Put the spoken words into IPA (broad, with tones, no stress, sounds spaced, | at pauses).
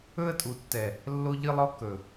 ɵ˦ ə̯ tʼ u˨ tː ɛ˨ | lː o˦ ʎ ɨ˦ lˠ ɔ˦ k ɵ˨